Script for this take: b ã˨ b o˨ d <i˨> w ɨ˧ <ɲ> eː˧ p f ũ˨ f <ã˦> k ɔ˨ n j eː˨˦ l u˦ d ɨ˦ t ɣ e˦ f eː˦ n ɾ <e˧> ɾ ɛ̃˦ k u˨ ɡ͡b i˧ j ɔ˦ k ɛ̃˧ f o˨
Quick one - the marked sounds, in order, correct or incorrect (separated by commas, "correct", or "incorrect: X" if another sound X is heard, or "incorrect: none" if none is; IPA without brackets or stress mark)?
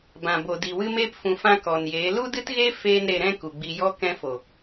correct, incorrect: m, incorrect: ã˧, correct